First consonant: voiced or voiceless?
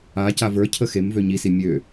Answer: voiceless